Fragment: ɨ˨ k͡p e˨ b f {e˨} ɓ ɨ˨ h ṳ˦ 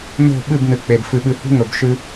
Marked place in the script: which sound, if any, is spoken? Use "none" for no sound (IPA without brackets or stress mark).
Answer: ɨ˨